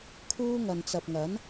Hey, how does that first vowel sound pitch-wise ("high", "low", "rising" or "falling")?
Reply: high